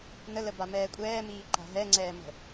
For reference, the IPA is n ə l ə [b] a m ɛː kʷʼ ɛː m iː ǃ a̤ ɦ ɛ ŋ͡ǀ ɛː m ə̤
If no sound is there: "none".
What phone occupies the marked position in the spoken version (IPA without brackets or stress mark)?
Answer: b